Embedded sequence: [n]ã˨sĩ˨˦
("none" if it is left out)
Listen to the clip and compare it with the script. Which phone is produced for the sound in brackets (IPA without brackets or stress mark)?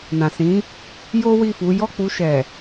n